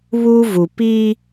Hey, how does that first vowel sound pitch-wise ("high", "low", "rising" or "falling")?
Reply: high